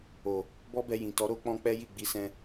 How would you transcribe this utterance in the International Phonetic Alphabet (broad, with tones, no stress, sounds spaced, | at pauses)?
o˨ | b ɔ˦ b ɛ˧ j ĩ˨ t ɔ˨˦ ɾ o˦ k͡p ɔ̃˦ k͡p ɛ˦ j i˦˨ ɡ͡b i˨˦ s ɛ̃˧